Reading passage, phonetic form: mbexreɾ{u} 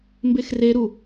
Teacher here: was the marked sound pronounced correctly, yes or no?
yes